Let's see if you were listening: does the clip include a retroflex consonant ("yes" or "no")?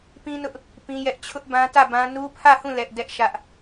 no